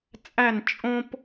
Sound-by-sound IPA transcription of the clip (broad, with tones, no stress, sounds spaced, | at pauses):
t͡sʼ æ˦˨ n t͡ʃʼ õ˦ p